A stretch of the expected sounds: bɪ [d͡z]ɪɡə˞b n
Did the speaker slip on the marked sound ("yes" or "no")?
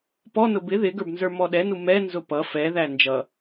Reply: yes